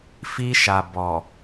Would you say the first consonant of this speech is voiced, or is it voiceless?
voiceless